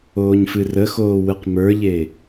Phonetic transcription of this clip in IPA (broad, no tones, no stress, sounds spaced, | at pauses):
oː ɲ f ɨ r ə x oː w ɨ q m ə˞ ʎ e